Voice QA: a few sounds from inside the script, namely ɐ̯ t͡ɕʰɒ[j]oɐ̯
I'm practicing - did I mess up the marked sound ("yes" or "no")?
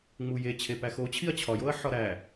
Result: no